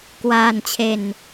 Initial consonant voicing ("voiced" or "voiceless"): voiceless